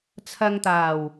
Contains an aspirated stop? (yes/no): yes